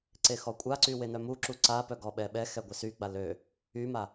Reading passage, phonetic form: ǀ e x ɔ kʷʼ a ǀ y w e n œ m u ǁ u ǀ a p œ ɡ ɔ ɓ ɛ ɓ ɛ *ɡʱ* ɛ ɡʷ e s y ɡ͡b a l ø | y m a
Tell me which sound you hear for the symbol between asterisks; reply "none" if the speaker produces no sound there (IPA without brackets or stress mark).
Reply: x